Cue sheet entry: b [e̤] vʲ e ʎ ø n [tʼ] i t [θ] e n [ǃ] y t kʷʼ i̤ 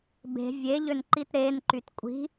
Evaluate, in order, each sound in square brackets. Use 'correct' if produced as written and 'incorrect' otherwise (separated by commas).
correct, incorrect, incorrect, correct